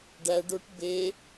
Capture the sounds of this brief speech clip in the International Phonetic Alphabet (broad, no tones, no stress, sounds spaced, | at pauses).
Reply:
ɖ æ ɖ o ʈ b e